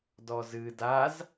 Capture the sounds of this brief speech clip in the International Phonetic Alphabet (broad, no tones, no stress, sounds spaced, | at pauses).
d ɔ z ɨ d a z